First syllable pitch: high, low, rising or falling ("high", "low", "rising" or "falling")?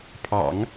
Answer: low